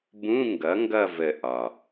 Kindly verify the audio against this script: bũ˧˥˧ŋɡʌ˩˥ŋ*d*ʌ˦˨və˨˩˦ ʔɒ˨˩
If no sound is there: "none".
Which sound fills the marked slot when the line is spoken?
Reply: ɡ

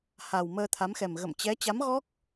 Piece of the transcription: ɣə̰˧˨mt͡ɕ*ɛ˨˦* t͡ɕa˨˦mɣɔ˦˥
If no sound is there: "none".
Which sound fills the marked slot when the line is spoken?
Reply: ɛ˨˦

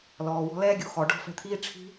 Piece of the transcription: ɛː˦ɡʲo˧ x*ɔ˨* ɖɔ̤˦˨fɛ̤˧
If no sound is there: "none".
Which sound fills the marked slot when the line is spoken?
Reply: ɔ˨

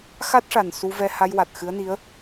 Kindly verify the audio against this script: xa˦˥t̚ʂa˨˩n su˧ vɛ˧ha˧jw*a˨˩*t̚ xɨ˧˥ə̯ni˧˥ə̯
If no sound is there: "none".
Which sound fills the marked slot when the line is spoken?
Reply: a˨˩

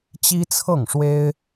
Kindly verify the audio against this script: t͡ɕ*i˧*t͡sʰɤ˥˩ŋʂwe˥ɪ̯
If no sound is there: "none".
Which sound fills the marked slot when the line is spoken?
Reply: i˥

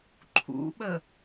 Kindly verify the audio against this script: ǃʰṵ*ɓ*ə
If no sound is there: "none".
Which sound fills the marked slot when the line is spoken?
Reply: ɓ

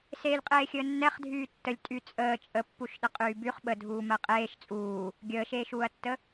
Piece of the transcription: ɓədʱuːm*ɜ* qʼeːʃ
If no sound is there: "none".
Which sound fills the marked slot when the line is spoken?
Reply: ɜ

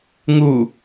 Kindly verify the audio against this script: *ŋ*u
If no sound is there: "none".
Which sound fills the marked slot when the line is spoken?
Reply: ŋ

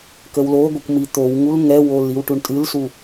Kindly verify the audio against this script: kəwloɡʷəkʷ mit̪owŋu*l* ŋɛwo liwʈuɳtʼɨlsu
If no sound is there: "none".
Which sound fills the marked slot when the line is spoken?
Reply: l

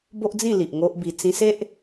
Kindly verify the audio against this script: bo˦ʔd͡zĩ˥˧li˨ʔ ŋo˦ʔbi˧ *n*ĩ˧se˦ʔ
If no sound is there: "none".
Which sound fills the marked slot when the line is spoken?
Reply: t͡s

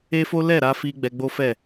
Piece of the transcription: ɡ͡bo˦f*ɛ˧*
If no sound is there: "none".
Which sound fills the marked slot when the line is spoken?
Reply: ɛ˦˨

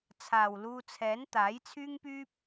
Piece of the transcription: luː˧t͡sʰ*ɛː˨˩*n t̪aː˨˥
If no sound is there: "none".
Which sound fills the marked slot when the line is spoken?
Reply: ɛː˨˥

